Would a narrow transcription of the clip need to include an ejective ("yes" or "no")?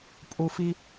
yes